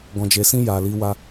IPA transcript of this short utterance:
ɡ ɔ̃˨ d͡ʒ e˨ s ĩ˧ j a˨ l i˨˦ w a˧

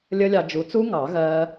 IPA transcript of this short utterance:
lʲ ə˦˥ lʲ ɑ˧ d͡ʒ u˨˥ t͡s u˦˥ ŋ ɑ˨˩˦ ɣ ɜ˦˥

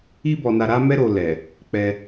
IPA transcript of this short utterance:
i˦ b ɔ˧ n a˧ ɾ a˦ m ɛ˦ ɾ o˧ l ɛ˨ | k͡p ɛ˦

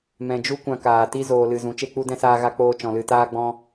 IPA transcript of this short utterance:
m ɛ̃˨ d͡ʒ u˦ kʷ ã˧ k aː˨ t i˦ z oː˧ l ɨ˧ z ũ˨˦ t͡ʃ e˦ k͡p u˦ d ɛ̃˦ s aː˦ ɣ a˦ k͡p oː˦ t͡ʃ ɔ̃˧ l ɨ˧ t aː˦ ɡ͡b ɔ̃˦

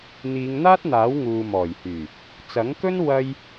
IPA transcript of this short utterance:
n̪ iː˨˧ ŋ n̪ aː˥ t̚ n̪ aː˨˥ w ŋ uː˨ m ɔː˨˩ j h yː˨˩ | t͡s ɐ˨˥ ŋ k ɵ˥ n w ɐ˧ j

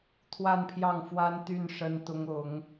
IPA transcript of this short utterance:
t̪ʰ w a˥˧ n pʰ j ɑ˥˩ ŋ f w a˥ n t̪ y˥˩ n ʂ ə˥ n t̪ ʊ˥ ŋ ʊ˧˥ ŋ

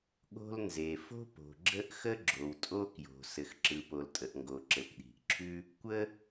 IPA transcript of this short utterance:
ɠ o̤˥ l n z e˩ f o̤˥ p o̤˩ ɡ͡ǁ ə˥ ʔ x ə˥ ɡ͡ǁ o˩ w tʼ o˥ k j o̤˩ s ɘ˩ x ǁ ɯ˩ p o˩ l tʼ ə˩ ʔ ŋ ɡ o˩ ǁ ɘ˩ p ɗ i̤˩ ʔ ǁʰ ʉ˥ | kʷ ə˥

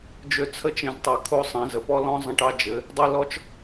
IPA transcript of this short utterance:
d͡ʒ ø˦ t͡sʰ ə˦ t͡ʃ ẽ˧ z tˤ o˧ kʰ o˦ sˤ ẽ˨˦ z ə˨ p ɔ˦ l ɔ̃˦ zˤ ə̃˦ ʈ ɑ˦ d͡ʒ ɘ˨˦ | dˤ e˦ l ɔ˦ t͡ʃ

